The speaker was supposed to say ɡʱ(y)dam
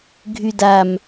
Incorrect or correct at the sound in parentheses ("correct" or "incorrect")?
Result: correct